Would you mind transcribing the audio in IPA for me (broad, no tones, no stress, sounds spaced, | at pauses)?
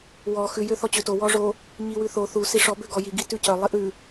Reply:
w ɔ x ʉ j ø θ ɔ t͡ɕ ø t o w ɔ ʐ o | ɲ i w ʉ θ o θ u s i ʂ ɔ b ø ɡ ɔ j i ɡ i t ʉ c œ lˠ i ʔ ʉ